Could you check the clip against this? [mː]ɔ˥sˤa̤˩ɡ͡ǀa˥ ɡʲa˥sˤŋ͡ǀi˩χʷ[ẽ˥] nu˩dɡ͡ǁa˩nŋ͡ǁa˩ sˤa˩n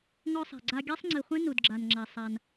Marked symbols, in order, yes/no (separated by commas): no, yes